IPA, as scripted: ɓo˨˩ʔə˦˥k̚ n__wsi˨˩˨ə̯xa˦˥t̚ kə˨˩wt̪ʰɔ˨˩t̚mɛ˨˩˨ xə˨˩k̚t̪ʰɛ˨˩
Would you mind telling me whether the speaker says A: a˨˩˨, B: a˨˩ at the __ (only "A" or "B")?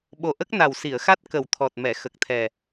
B